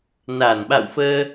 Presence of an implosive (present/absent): present